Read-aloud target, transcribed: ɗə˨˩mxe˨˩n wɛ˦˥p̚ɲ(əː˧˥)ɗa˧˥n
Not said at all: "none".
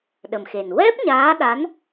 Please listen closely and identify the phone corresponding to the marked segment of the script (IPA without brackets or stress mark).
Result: aː˧˥